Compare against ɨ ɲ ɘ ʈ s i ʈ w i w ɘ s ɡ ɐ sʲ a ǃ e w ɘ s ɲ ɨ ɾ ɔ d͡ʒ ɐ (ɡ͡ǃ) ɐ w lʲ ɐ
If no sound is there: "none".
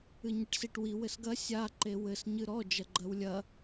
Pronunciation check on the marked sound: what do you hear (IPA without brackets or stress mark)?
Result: ɡ͡ǃ